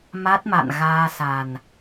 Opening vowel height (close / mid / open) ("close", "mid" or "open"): open